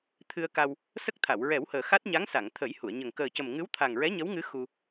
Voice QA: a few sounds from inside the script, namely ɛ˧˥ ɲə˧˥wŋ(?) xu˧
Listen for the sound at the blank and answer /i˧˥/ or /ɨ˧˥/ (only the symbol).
ɨ˧˥